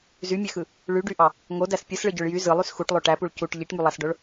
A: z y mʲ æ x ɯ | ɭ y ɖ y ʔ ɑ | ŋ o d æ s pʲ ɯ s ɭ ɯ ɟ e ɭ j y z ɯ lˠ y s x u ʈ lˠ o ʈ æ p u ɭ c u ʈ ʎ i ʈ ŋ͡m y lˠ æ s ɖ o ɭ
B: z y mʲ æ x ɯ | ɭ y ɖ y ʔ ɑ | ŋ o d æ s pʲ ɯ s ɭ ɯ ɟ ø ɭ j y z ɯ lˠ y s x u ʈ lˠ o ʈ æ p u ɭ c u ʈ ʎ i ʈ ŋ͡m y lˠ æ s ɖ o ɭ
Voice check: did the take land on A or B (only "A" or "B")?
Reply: B